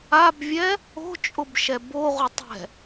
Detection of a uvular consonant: present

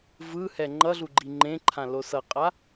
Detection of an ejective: present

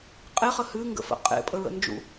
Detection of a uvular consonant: present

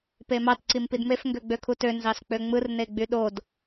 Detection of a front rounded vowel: present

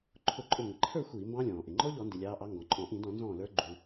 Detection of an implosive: absent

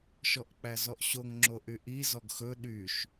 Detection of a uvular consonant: absent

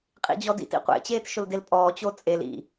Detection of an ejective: present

